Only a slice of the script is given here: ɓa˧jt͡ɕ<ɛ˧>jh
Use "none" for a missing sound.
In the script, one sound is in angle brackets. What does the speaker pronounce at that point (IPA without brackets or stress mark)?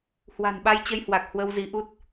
ə˧